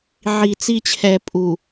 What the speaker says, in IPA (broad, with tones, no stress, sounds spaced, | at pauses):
ʕ i˨ t͡s i˦ t͡ɕʰ ɛ˨ pʼ u˨